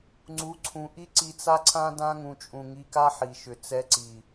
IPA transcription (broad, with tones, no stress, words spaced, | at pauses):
ŋ͡ǀu˨˦ǀʰũ˨ ʔi˦ǀi˧t͡sa˦ ǀʰã˦ dã˦ŋũ˨t͡ʃʼũ˨ ŋi˧ka˦ħi˨ʃʏ˨ t͡sɛ˧ǀi˨